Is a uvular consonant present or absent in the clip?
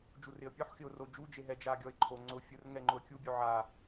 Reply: absent